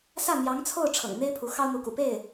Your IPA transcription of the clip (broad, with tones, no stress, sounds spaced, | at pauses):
s ä˥˩ n̪ j ɑ˧˥ ŋ t͡sʰ o˥˩ ʊ̯ ʈ͡ʂʰ ɤ̰˨˩ ŋ n̪ e˥ ɪ̯ pʰ u˧˥ x ɑ˥ ʊ̯ n̪ u˧˥ k ṵ˨˩ p e˥˩ ɪ̯